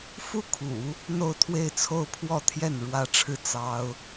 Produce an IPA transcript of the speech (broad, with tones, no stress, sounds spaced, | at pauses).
f u˥ kʰ ṵ˨˩˦ | n̪ o˥˧ ʊ̯ t̪ʰ w e˥˧ ɪ̯ t͡sʰ o˥˧ ʊ̯ pʰ w ɔ˥˧ t̪ʰ j ɛ˥˩ n ɻ w ä˥ ʈ͡ʂʰ ɻ̩˥˩ t͡s ɑ˥ ʊ̯